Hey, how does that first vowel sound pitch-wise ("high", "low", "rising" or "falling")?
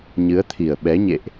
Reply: rising